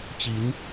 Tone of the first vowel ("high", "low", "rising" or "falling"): rising